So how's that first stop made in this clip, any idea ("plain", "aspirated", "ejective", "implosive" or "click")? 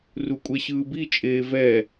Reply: ejective